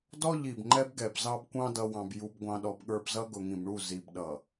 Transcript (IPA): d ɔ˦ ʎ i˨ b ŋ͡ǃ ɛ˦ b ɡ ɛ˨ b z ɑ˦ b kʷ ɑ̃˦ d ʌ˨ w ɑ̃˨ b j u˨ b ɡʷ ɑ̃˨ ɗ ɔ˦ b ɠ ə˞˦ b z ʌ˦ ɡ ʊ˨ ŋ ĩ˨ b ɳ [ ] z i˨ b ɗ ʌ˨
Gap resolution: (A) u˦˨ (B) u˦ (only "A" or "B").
A